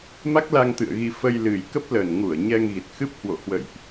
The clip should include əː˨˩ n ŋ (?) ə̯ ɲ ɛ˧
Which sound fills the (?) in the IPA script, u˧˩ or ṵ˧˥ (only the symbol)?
u˧˩